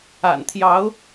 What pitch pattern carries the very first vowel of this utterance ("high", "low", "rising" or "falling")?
low